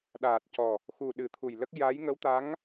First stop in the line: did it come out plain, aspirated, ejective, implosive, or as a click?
implosive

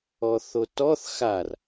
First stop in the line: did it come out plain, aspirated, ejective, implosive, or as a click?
plain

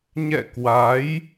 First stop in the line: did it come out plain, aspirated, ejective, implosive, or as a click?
plain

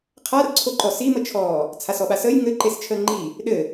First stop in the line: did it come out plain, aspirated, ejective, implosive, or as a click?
aspirated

